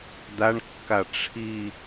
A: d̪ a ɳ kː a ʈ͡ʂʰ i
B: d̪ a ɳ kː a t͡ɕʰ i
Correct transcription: A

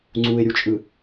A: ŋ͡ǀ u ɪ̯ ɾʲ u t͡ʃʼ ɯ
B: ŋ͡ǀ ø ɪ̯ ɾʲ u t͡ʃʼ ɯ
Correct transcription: A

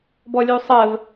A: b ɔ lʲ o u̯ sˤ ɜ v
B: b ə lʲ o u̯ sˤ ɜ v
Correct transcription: A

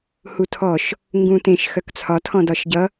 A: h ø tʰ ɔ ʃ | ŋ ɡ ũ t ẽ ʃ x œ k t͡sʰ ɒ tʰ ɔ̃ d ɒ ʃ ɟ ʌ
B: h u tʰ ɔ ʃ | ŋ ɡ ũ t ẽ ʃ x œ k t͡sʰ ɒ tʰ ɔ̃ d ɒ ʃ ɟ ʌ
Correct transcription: B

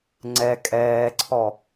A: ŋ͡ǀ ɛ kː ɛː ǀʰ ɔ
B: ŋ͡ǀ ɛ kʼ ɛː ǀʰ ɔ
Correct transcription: B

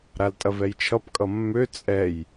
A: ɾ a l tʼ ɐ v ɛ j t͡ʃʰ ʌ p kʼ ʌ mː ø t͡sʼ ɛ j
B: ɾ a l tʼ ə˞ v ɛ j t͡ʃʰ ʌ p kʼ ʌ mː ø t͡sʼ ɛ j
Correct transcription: A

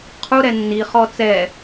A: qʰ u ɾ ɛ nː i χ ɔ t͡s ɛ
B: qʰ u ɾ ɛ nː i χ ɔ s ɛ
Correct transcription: A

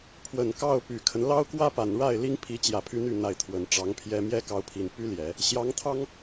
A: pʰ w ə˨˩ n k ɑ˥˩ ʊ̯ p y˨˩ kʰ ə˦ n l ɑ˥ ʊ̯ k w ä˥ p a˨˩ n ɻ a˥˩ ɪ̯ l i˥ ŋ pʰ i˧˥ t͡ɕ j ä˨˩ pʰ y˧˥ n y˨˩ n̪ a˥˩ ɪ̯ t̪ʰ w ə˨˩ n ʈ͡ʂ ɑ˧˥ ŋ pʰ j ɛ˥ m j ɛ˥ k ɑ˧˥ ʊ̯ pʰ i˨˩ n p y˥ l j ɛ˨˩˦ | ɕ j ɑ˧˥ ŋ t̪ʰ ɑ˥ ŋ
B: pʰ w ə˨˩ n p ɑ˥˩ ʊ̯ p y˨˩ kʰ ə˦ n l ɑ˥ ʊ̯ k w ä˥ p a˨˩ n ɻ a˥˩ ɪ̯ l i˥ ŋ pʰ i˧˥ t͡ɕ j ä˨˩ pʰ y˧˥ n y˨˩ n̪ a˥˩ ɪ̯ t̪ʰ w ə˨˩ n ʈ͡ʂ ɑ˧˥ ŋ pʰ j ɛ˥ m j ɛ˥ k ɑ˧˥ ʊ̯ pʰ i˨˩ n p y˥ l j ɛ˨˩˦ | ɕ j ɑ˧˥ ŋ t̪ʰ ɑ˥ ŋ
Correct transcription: A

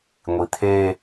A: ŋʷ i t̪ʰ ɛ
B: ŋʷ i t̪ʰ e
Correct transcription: B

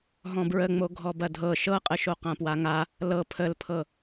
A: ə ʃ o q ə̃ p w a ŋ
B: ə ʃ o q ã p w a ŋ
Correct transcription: B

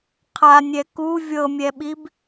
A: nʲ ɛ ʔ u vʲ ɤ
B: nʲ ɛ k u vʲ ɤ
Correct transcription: B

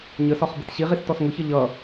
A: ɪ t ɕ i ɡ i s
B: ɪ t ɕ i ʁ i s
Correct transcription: B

